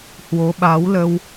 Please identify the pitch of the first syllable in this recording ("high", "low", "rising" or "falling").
rising